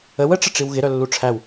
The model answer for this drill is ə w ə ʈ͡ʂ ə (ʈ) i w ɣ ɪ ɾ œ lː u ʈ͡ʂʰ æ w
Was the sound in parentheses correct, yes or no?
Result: no